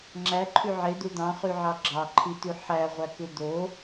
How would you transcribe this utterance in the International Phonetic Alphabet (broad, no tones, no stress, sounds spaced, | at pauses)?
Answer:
ŋ͡ǁ æ ǃʰ y ʕ e d̪ u d̪ ɑ̃ χ y ʕ ɑ ɡ͡ǁ ɑ ǃʰ i t̪ y ħ æ ʁʷ æ k ɯ d̪ o